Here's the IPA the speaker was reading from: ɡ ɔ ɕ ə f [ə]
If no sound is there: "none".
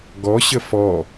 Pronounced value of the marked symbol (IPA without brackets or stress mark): ɔ